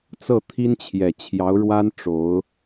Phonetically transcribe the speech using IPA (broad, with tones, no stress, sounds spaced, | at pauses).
t͡s ɤ˥˩ t̪ʰ i˥ n t͡ɕʰ j ɛ˨˩ t͡ɕʰ j ɑ˧˥ ʊ̯ ɻ w a˥ n ʈ͡ʂ o˧˥ ʊ̯